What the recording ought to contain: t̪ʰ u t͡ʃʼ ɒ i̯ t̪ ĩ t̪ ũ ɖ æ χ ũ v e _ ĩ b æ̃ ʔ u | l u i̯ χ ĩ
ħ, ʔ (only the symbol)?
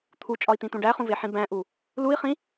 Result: ħ